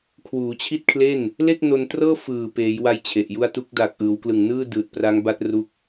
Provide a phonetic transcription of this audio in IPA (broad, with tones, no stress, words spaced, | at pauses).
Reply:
kʰwuː˩˦t͡ɕʰi˥˩t̚kʰle˥˩n | le˥˩k̚no˧ntrɤː˥˩ fɯː˨˩ peː˩˦jwa˧j t͡ɕʰe˨˩ʔju˥˩a̯ tu˦˥k̚daː˨˩k̚ʔɯː˩˦wklɯ˨˩ŋ nɯː˥˩dɯː˨˩t̚pra˦˥ŋ ba˦˥t̚ ru˦˥k̚